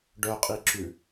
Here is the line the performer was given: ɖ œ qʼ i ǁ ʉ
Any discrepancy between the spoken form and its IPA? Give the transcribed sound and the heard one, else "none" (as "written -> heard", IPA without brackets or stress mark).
none